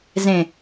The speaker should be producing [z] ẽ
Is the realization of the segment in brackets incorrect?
no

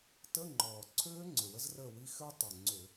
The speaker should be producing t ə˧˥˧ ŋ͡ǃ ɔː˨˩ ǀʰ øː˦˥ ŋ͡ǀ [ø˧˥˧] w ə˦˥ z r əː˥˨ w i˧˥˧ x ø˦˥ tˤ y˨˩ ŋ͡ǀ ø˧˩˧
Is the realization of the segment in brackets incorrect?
yes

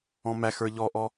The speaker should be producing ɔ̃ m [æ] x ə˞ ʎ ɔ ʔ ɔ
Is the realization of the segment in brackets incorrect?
no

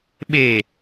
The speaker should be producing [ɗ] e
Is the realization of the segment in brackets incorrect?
yes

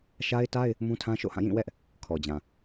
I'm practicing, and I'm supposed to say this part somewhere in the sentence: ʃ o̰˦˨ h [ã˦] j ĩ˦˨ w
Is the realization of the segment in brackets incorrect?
yes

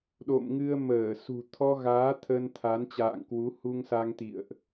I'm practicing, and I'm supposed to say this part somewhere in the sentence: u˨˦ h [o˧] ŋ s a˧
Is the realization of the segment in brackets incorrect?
yes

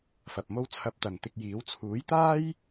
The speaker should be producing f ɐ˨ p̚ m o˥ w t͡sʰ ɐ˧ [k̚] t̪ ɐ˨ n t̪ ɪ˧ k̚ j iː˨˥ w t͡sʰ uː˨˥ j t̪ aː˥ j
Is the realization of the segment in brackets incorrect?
yes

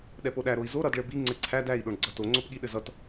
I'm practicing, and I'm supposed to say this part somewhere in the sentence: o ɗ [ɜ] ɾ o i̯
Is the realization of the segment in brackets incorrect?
yes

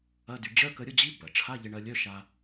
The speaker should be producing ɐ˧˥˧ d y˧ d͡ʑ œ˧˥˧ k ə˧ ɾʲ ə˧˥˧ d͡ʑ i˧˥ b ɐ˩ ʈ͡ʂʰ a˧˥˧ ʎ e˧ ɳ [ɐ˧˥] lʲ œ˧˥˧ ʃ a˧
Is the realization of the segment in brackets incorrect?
yes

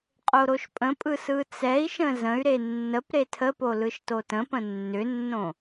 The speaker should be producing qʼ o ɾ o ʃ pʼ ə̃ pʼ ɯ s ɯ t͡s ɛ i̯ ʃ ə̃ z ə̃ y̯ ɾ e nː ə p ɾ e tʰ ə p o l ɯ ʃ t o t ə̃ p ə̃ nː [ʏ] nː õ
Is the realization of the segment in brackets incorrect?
no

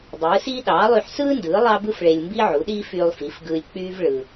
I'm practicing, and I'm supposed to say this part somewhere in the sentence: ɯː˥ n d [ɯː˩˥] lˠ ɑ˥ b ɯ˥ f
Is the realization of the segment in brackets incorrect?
no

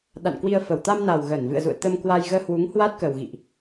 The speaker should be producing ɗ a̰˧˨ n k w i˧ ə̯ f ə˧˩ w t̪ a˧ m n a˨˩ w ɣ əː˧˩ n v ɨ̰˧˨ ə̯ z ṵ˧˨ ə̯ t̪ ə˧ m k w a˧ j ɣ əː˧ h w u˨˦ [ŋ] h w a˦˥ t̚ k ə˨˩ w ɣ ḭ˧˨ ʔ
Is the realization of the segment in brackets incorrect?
no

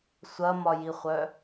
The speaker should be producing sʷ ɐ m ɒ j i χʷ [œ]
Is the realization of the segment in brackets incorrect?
no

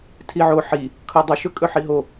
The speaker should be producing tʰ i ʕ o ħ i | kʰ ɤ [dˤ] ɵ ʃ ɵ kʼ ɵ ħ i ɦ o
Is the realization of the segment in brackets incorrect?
no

